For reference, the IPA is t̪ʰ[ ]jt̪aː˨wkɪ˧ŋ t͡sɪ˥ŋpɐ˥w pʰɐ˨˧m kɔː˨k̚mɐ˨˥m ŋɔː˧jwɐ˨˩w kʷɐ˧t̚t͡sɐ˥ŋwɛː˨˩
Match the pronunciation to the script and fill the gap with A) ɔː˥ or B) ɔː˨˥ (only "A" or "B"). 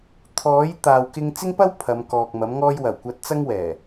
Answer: B